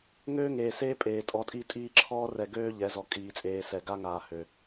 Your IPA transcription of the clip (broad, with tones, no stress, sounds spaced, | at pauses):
ŋ øː˦ ŋ eː˨ s eː˦ pʼ eː˨ tʼ ɔ˨˦ tʼ i˦ tʼ iː˦ ǁʰ ɔː˦ r ɛ˨ ɡ øː˦ ʎ ɛ˨˦ z ɔ˨ kʼ iː˨ t͡sʼ eː˨ s ɛ˨ ɡ a˦ ŋ aː˨ h ø˨